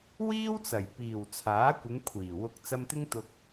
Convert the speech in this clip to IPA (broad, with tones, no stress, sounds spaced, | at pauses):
w iː˥ w t͡s ɐ˨˩ j p iː˨˩ w t͡sʰ aː˨˥ kʷ ɪ˨˧ ŋ kʷʰ iː˨˩ w ʊ˧ k̚ t͡s ɐ˧ m t̪ ɪ˥ ŋ t̪ ʊ˧ k̚